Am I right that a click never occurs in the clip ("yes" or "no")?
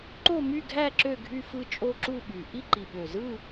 no